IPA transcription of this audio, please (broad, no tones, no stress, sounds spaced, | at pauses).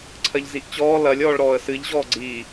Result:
ǀʰ ɜ ʎ z i ʔ t͡ɕ ɔː l ɐ lʲ ɔː ɭ ɾ ɔː ə̯ s ɨ ʎ ʑ ɔː ɡ͡ǀ iː